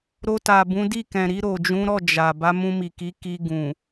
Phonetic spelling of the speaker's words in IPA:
ɾ o˧ t a˨ b ũ˨˦ d i˦˨ k ɛ̃˨ ɾ i˧ ɾ o˨ d͡ʒ ũ˨˦ ɾ ɔ˦˨ d͡ʒ a˨ b a˨˦ m ũ˧ m i˨ k i˨˦ k i˧ ɡ ũ˨

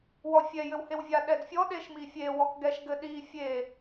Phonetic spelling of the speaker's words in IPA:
w ɔ fʲ ɛ j ɘ w h e w vʲ a ɗ ɛ d fʲ ɔ ɗ e ʃ m i fʲ e w ɔ k ɡ ɛ ʃ ɡ ɘ ɗ i fʲ e

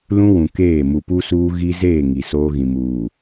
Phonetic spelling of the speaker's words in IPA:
l ũ˦ w ũ˨ k eː˦˨ m u˨ p u˦ s uː˦ ɣ i˦ z eː˦˨ ŋ i˨ s oː˦ ɣ ĩ˨ m uː˨

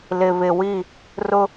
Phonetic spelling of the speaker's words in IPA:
l ɪ˨ β ɪ˨ w i˦˨ | r ʊ˦

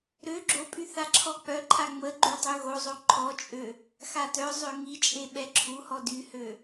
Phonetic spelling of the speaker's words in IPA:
ɾ ø ɡ͡ǁ o pʼ y θ a ǁʰ ɔ k͡p œ ǃʰ a ŋ͡m ə ɡ͡ǃ y dˤ ø ɣ o zˤ o ǃʰ ɔ t͡ʃʼ ø | x a t œ zˤ ø ŋ i t͡ʃʼ e ɓ ɛ ǁʰ u h ɔ d y h ø

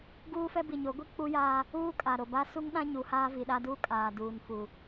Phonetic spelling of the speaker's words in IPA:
ɡ uː˦ f ɛ˦ b i˨ ɲ o˨˦ ɡʷ i˦ k͡p u˦ j aː˦ | uː˦ kʼ a˨ ɾ o˨ b a˦ s u˦ ŋ ɗ ã˦ ɲ u˨ h aː˦ v i˨ ɗ a˦ d uː˦ kʼ aː˨ d uː˨ n f u˨

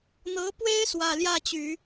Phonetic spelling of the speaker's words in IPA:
n̪ ɤ˧˥ p w e˥ ɪ̯ s w ä˥˧ l j ä˥˩ t͡ɕ y˨˩˦

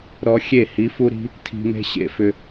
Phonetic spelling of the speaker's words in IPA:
ɾ ɔ˧ xʲ e˦˨ h i˨˦ f u˦ ɾ i̤˦ | tʰ i̤˧ m e̤˦ ɕ ḛ˧ f ʏ˧

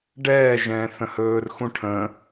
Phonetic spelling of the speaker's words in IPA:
ɖ ɛː ʒ ɛ̃ː θ ə̃ h ɵː r x ũ ʈʰ ə̃

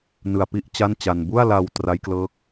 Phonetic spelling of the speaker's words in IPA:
n ɯ˧ a̯ p i˥˩ ʔ t͡ɕ a˥˩ n t͡ɕ a˧ n b u˥˩ a̯ l a˧ w t r a˦˥ j k l ɤː˦˥ k̚

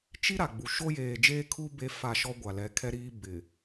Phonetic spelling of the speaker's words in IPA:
t͡ʃ i˦ ɾ a˨ ɡ͡b u˨ ʃ o˦ j eː˨ d͡ʒ eː˦ kʰ u˦ b e˨˦ f a˨ ʃ ɔ˦ ɡʷ a˨ l ɛ˨˦ kʰ ɛ˦ ɾ iː˦ b ɪ˨

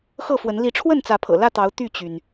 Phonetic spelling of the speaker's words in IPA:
x ɤ˥˨ f w ə˨˦ n l i˨˦ ʈ͡ʂʰ w ə˥˨ n t͡s ä˨˦ pʰ ɤ̰˨˩ l ä˥˨ t̪ ɑ˨˦ ʊ̯ t̪ y˥˨ t͡ɕ y˩ n

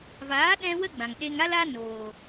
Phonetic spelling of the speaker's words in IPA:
v aː˨˦ ɗ ɛ̃˦ w ə˦ ɡ͡b ã˨ ŋ ɗ e˧ ŋ a˦ l a˦ n oː˨

